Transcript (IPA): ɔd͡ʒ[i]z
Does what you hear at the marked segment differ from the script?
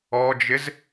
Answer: yes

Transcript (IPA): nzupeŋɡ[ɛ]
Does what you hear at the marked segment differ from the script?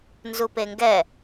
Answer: no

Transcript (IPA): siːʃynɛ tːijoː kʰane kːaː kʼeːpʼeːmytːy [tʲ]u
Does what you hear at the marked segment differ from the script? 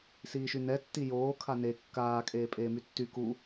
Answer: yes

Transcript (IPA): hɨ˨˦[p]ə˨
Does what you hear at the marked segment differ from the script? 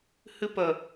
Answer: no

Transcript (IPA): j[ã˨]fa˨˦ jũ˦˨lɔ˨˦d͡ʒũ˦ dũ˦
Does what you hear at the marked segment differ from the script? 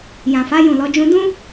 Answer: no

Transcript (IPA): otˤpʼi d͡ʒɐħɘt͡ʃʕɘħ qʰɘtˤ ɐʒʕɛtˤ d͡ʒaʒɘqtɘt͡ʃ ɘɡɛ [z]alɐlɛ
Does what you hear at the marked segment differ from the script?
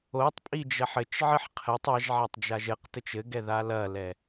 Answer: yes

